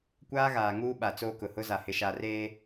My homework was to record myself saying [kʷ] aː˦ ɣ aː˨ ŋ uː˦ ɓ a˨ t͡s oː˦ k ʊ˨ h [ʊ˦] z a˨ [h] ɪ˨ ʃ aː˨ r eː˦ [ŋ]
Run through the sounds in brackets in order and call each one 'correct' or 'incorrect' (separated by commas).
correct, correct, correct, incorrect